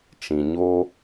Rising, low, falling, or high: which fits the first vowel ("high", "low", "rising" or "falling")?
low